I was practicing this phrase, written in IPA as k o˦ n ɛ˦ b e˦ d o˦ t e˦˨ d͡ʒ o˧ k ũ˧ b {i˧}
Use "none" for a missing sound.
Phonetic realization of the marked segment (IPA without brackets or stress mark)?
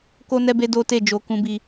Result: i˧